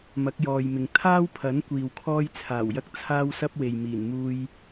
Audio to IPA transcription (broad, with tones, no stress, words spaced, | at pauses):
mɐ˨˥k̚jɔː˨jmɪ˨ŋ t̪ʰaː˥wpʰɐ˨˥n kʷiː˨wkʰɔː˥jt͡sʰaː˨˩wjɐ˥k̚ t͡sʰaː˥wsɐ˥p̚ we˨jmiː˨˩nmuː˧j